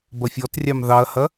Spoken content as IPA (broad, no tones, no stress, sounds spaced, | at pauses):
b ɐ fʲ ɔ t rʲ ɑ m ð ɑ ɐ̯ h ɐ